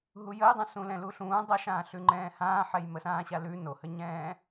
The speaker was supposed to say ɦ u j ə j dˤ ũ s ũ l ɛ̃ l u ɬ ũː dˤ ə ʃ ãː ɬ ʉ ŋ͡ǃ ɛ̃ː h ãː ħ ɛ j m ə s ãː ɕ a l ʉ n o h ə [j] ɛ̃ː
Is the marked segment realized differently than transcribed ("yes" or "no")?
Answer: yes